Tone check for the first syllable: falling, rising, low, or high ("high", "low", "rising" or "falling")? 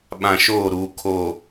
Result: low